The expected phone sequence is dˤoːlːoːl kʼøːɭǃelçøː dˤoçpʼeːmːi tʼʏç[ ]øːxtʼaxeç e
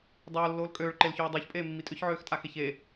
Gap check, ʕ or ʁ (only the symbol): ʕ